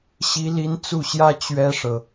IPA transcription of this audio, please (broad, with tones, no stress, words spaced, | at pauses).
ɕi˥li˥n t͡su˥˩ɕjä˥ t͡ɕɥɛ˥ʂɤ˨